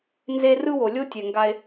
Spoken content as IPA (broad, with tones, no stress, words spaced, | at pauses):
nze˦ rɯ˦wo˨lʲo˦ tʲɛ˨ŋɡa˧e̯